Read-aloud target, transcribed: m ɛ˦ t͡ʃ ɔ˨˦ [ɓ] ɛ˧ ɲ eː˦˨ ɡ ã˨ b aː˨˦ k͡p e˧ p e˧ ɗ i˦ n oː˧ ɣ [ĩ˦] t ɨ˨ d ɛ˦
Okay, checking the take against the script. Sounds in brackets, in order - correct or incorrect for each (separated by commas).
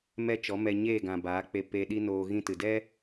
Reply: incorrect, correct